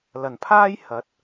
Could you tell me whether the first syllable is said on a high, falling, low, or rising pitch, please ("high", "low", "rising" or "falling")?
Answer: low